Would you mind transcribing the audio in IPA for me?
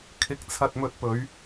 kʰ ɪ˧ k̚ t͡sʰ ɐ˧ t̚ m ɵ˧ t̚ p ɵ˨˥ ɥ

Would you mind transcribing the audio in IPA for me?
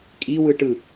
kʼ i w ɯ ʈ ɯ

